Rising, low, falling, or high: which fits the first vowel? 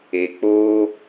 low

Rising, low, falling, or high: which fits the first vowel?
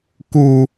low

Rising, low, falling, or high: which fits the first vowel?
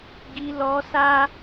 high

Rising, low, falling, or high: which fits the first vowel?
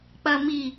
low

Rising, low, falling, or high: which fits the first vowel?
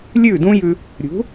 falling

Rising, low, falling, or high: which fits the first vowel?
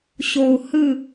low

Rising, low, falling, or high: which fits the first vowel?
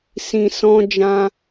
low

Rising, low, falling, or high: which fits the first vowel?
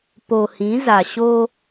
low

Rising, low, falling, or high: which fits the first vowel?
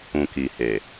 low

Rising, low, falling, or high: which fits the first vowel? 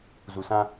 low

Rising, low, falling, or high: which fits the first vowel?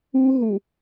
high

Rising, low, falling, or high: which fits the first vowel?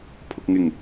low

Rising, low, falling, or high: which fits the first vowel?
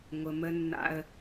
low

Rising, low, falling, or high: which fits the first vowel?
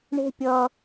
high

